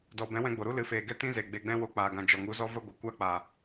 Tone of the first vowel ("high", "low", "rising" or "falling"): low